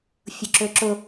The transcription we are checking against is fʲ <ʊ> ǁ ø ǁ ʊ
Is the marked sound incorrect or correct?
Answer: correct